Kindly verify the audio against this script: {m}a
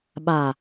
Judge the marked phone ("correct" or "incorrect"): incorrect